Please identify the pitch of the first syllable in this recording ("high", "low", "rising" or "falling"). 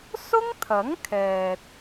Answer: high